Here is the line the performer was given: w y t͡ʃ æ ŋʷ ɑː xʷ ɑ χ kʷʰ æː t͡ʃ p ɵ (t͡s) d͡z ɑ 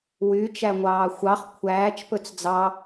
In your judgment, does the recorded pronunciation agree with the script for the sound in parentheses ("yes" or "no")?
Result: yes